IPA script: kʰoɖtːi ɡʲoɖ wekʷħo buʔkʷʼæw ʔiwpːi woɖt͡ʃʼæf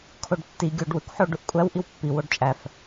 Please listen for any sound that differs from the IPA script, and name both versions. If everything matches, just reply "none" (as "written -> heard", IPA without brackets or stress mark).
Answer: b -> ɖ